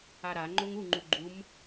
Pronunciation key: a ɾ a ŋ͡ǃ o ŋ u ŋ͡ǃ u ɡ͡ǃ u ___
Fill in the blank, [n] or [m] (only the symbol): m